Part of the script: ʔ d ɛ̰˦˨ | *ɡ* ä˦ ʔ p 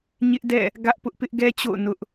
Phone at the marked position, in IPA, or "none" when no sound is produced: ɡ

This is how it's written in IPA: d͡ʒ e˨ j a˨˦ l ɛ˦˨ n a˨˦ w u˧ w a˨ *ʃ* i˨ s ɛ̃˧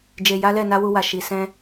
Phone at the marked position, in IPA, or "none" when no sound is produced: ʃ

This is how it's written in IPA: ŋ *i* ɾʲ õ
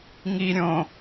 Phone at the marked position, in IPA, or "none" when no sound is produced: i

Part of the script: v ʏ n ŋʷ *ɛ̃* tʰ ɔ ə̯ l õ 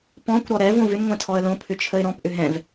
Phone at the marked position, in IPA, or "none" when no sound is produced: ɛ̃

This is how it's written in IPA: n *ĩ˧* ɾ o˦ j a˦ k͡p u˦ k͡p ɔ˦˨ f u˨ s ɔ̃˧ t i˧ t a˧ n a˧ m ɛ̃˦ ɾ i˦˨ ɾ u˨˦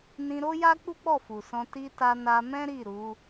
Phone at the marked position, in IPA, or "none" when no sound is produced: ĩ˧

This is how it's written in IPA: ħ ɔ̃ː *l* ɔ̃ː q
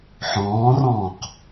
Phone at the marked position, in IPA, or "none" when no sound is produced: r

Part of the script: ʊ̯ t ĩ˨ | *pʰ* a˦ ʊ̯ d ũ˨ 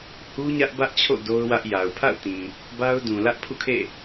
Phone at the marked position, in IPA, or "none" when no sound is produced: b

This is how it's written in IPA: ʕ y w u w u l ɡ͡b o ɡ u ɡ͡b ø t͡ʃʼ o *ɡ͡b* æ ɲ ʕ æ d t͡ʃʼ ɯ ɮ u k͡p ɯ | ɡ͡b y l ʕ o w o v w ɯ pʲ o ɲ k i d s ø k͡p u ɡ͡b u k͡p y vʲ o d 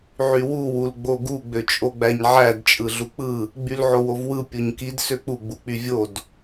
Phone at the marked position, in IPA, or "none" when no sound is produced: ɡ͡b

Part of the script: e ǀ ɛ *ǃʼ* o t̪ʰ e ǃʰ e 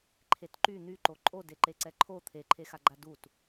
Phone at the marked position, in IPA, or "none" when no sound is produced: ǃʰ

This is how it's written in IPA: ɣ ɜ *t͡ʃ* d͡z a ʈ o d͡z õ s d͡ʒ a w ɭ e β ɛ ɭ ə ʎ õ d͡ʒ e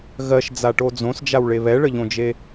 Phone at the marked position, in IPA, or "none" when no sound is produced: ʃ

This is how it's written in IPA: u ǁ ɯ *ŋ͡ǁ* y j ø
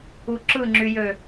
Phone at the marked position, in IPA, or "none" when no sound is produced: ŋ͡ǁ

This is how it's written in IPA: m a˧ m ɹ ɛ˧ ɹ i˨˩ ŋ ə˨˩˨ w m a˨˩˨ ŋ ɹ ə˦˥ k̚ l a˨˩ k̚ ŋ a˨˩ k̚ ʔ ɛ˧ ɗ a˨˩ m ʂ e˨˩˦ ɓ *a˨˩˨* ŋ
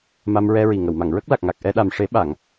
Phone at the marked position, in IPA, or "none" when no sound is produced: a˨˩˨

